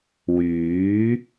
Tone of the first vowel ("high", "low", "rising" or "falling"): rising